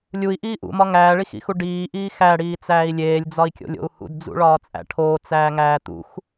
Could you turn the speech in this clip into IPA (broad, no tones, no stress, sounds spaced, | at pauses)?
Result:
lʲ u i̯ ʔ iː ʔ ṵ m ɒ ŋ æː ɭ i x ḭ x u ɖ iː ʔ iː x æ ɽ iː t͡s æː i̯ lʲ eː lʲ d͡z ɒ i̯ kʲ o̰ lʲ o̰ u̯ h ṵ d d͡z ṵ ɭ ɒː t͡sʼ æ̰ ʈʰ oː t͡s æː ŋ æː t̪ ṵ x